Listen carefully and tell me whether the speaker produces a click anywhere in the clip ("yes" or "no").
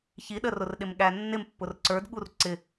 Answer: yes